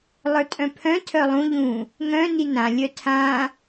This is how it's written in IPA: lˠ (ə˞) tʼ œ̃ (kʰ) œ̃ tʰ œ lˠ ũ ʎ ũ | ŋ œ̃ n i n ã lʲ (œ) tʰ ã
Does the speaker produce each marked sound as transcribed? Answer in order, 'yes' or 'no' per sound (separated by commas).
yes, no, yes